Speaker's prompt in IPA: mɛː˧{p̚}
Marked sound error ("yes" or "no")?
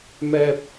no